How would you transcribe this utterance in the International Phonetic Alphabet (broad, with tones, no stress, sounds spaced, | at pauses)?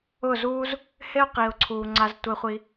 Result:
ʊ˦˨ z uː˦ z | h e˦ ʊ̯ q iː˨ ʊ̯ ǀʰ uː˨ ŋ͡ǀ a˧ z tʷ e˧ χʷ i˧